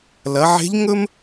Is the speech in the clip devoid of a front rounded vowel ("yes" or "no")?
yes